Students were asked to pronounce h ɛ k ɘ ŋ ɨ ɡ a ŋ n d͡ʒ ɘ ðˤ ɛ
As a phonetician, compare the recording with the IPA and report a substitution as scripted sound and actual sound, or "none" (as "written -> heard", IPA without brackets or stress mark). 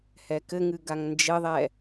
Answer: none